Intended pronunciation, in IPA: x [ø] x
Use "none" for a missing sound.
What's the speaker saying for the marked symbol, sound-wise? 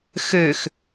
ø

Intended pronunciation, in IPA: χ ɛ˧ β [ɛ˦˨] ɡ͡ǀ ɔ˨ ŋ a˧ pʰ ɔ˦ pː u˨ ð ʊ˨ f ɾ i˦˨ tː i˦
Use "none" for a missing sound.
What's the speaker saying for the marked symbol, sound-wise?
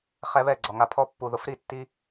ɛ˦˨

